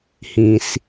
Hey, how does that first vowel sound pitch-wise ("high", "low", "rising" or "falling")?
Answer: low